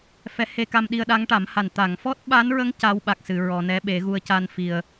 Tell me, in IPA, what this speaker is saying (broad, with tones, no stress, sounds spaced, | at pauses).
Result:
f ɛ˧˥ h e˧ k a˧ m ɗ i˧ ə̯ ɗ a˧˥ ŋ ʈ a˨˩˦ m h a˨˩ n t̪ a˨˩˨ ŋ f ɔ˦˥ t̚ ɓ a˧˥ n ɹ ə˧˥ ŋ c a˧˥ w ɓ a˨˩ k̚ s ɨ˨˩˨ ɹ ɔ˨˩˨ n ɛ˧˥ ɓ e˨˩˦ ɣ u˧ ə̯ c a˧ n f i˨˩ ə̯